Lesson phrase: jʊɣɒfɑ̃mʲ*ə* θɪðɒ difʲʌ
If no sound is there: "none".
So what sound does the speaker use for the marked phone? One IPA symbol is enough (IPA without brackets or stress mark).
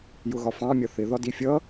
ʌ